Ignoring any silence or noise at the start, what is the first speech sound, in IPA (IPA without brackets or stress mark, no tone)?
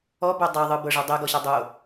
ɔ